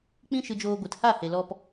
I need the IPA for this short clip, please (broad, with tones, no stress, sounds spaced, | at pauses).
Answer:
k͡p ĩ˦ ʃ ɨ˧ d͡ʒ oː˧ ɡʷ ɨ˨ t h a˦˨ h e˨ l ɔ˧ p